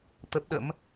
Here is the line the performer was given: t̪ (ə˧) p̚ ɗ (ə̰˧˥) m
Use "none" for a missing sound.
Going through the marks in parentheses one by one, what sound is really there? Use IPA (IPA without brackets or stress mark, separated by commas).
ə˦˥, ə̰˧˥